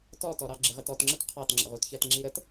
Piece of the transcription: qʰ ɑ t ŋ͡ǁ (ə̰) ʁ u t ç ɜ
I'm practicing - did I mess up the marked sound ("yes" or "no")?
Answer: no